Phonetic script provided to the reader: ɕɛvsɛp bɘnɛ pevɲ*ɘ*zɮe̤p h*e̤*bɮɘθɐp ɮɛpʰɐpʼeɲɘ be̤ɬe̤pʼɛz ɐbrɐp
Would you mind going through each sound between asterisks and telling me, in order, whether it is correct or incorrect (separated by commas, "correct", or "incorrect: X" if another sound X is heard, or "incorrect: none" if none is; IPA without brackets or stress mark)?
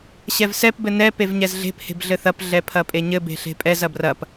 incorrect: ɛ, correct